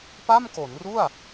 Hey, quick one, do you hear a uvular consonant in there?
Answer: no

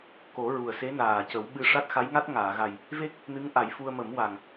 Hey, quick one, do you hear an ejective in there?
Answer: no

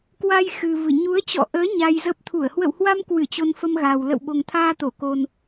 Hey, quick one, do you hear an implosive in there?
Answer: yes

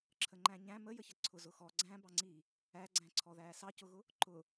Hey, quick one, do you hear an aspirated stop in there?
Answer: yes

